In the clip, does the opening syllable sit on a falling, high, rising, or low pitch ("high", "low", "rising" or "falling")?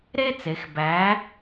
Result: high